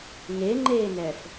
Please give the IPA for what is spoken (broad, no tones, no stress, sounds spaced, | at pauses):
ŋ e ŋ͡ǃ eː n ɛ f